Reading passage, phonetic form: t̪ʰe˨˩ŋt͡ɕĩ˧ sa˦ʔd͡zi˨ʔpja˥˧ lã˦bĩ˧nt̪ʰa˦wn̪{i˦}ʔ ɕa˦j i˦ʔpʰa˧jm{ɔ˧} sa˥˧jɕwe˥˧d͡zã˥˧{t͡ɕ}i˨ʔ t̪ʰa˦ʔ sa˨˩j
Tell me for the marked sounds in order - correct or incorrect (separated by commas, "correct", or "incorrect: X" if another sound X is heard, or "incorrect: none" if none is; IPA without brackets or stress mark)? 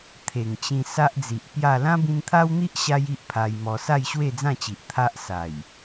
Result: correct, correct, correct